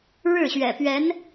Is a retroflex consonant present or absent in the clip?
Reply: present